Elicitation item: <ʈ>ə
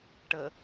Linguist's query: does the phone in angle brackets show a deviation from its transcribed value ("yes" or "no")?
no